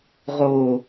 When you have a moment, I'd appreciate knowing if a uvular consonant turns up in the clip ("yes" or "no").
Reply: yes